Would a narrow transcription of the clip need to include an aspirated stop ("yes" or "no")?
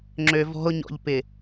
no